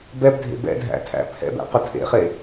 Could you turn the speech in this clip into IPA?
bɛbdʱḛ bɛ̰dʱæ̰tʰæ̰ pʰɛ̰bɛ̰qʊ tʰḛχe

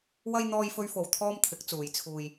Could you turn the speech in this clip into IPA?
wɐ˥j n̪ɔː˥jfɵ˥ɥfo˧w t̪ʰɔː˥mt̪ʰɪ˨˥k̚ t͡suː˨˧jt͡sʰuː˧j

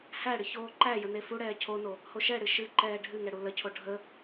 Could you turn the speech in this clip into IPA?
hæɽɨ çoːǃæjə nefuɽɛː cʰono | hoʃɛɽɨ ʃɨǃɛː ɖʱɨŋɛ ɽuləcʰo ɖʱə

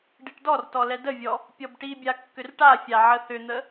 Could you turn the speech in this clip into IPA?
ɖiʈdɔrtɔ lɛdəvʲɔ | pʲɔbʈibʲa kːʏrʈafʲa ʕəθʏn̪ə

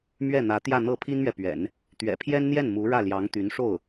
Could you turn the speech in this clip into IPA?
mɥɛ˥˩n̪ä˧˥ t̪jä˥˧n̪ɤ˥˩ pʰi˥nmɥɛ˨pɥɛ̰˨˩˦n | t̪ɥɛ̰˨˩pʰjɛ˥nn̪jɛ˥˩n mu˧˥ɻä˥˩ljɑ˧˥ŋt̪y˧˥n ʂo˥˩ʊ̯

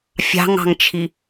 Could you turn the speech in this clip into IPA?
fʲɑ̤ŋɑ̤ŋt͡ʃʰi

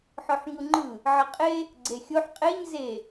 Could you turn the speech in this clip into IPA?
ħɔħɲuŋ͡ǃɯ | ʕəqʼe | ɡ͡ǀexʲoħ qʼeɲ ze

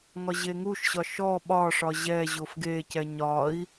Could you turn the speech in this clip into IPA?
ŋɒʑeŋuʃɕɒ ʃɔ ɓɒʂɒ ʑɛʑof ɡecɛ ɲɒi̯

